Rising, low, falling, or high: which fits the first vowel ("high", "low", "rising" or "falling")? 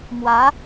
rising